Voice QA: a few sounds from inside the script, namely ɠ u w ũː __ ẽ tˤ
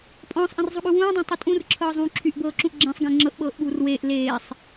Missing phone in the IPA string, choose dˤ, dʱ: dˤ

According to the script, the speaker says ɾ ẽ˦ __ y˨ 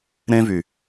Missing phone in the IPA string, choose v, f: v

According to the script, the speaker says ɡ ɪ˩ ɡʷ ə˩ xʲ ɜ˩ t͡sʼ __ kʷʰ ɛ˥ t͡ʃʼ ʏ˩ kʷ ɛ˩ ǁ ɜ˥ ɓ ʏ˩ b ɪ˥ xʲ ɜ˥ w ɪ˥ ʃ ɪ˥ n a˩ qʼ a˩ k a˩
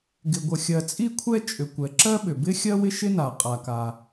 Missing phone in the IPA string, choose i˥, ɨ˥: i˥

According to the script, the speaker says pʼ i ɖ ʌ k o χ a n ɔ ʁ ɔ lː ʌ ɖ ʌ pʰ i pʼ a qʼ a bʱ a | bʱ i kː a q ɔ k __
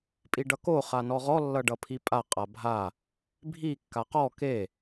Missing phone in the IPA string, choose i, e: e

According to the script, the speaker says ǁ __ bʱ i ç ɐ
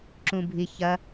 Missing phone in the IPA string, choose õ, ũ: ũ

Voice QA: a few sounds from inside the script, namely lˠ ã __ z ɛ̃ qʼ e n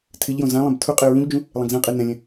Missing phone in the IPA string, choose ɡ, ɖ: ɡ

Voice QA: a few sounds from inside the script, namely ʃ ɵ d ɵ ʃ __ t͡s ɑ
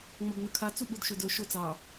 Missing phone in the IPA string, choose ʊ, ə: ʊ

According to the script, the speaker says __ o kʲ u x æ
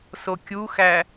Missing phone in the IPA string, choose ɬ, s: s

